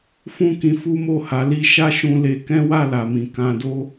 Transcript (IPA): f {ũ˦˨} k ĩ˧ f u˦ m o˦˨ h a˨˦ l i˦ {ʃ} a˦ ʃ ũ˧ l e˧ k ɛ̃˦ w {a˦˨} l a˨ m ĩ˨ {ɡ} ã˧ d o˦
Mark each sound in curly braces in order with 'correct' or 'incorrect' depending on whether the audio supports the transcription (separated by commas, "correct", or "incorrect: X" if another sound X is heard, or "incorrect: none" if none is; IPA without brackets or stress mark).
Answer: incorrect: ũ˦, correct, correct, incorrect: k